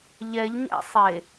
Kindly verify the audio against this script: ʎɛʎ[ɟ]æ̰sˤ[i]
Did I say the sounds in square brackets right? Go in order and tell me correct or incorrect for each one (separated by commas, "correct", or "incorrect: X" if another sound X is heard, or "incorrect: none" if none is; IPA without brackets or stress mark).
incorrect: ɲ, incorrect: e